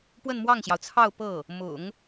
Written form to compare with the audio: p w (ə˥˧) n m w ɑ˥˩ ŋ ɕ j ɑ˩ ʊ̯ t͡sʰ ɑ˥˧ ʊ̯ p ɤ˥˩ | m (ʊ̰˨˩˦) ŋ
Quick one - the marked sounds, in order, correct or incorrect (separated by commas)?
correct, correct